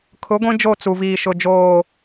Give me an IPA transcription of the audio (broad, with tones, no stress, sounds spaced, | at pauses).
kʰ ʊ˨˦ ɡʷ ĩ˦ d͡ʒ o˦˨ t͡s u˨ v iː˨ ʃ ʊ˨ d͡ʒ oː˨